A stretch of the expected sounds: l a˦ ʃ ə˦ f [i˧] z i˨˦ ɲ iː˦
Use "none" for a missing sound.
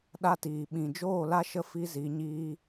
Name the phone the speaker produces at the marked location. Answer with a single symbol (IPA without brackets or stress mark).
i˦